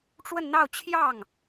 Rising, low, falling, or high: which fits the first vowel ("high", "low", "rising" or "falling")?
falling